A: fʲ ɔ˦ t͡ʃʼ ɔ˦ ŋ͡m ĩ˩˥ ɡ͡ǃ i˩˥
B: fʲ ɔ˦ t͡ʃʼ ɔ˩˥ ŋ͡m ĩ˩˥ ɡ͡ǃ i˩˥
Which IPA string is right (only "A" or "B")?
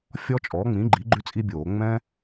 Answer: B